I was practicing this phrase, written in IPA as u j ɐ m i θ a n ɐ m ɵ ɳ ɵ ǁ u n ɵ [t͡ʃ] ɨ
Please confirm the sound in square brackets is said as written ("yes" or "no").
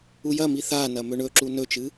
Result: yes